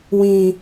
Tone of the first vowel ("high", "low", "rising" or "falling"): low